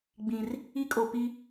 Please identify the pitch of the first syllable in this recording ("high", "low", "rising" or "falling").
low